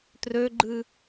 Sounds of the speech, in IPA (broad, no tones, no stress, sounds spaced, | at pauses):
t r ø ɡ͡ǃ ɨ